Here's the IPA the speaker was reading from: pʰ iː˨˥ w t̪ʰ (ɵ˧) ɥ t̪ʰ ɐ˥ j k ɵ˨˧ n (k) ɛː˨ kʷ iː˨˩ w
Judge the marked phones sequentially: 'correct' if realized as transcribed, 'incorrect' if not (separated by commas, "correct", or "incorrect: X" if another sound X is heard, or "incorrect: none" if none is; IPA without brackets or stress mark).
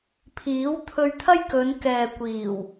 correct, correct